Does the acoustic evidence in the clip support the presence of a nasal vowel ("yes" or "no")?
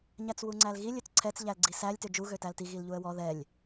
no